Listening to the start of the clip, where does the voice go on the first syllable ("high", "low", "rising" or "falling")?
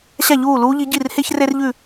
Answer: falling